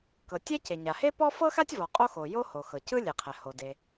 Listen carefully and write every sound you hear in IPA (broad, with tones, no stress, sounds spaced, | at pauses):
k ɤ˩ tʲ ɛ˥ c e˩ ɲ a˩ h e˥ p ɔ˥ f ɤ˥ x a˥ tʲ v ɔ˩ qʼ o˥ x o˩ j o˥ h o˩ x ɤ˩ c ɯ˥ lʲ e˩ qʰ ɛ˩ h o˩ d e˩